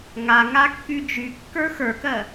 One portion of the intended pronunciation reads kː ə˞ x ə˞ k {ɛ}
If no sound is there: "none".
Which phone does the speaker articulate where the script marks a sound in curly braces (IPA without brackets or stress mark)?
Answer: ɜ